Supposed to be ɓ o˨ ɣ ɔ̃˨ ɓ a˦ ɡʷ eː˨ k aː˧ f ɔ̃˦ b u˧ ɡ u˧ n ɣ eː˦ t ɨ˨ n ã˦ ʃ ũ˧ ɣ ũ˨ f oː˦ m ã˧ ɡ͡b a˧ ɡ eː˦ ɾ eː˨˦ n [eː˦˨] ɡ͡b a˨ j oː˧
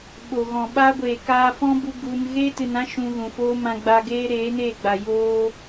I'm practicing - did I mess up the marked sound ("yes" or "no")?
no